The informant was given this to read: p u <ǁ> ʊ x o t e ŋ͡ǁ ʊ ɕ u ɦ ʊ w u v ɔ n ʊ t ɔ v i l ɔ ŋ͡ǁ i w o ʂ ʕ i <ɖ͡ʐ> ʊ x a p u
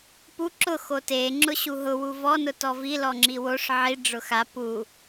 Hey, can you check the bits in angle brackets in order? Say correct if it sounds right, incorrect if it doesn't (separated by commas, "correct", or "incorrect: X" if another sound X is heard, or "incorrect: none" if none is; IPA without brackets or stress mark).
correct, correct